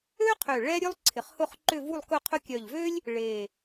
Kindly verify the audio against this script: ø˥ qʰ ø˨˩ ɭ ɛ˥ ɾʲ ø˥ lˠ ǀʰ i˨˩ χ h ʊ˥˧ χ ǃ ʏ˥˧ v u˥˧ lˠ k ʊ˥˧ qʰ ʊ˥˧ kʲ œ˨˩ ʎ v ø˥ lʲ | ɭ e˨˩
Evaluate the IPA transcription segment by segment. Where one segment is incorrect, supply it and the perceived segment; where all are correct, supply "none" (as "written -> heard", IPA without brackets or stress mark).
i˨˩ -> ɪ˨˩